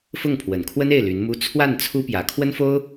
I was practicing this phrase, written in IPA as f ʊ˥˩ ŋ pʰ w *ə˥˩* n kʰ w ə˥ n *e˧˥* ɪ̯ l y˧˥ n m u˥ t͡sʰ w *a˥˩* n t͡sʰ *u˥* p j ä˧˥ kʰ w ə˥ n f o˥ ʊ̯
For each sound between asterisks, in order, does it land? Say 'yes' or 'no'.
no, no, yes, yes

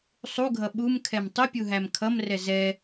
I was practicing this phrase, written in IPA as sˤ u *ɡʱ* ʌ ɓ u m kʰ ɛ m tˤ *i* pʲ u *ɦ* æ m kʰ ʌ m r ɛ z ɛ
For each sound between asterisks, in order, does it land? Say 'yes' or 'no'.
yes, no, yes

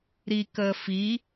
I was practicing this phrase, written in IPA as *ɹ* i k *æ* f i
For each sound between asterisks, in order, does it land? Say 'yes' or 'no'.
no, no

